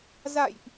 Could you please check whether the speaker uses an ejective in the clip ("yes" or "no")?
no